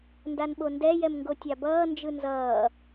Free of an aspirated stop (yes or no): yes